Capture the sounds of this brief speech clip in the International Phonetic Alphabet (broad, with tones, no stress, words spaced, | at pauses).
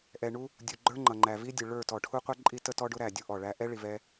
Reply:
ʔɛ˨ɳu˦ | dʲu˨ɡ͡ǃə˞˦ŋ͡ǃʌ˨ ŋ͡ǃæ˨vi˦ dʲʊ˨ɭə˞˦˨ tɔ˨ʈʰu˦qʷɛ˦ ǃʼi˦tə˦ tɔ˦ɖʊ˦ɾæ˨ dʲu˦ ʔɔ˨ɭæ˦ ʔɛ˦ ɭi˨vɛ˦